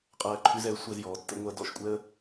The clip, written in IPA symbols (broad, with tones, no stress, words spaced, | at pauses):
qʼɜː˧ǃʰʉ˧zɛ˩˥ə̯ sʷɛ˧zjɔː˩˥ tːə̰˧ŋʷɜ˧ dɔ̰˥˩ʃkʷʼɛ˥ə̯